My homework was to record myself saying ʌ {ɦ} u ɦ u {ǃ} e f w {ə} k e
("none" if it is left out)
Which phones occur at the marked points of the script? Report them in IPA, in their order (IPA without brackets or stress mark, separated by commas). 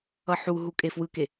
ħ, kʼ, ɯ